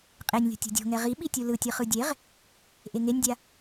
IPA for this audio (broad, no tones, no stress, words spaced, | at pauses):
qʼenʲlʲo̤ tʲṳdʲo̤ŋɛ ʁiɓi tʲulɯ tʲɯχɯdʲeʁ | ʔeŋenʲdʲa